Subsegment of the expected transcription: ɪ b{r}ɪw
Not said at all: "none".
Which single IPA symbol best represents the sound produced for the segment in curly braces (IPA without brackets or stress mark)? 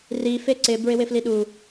ɹ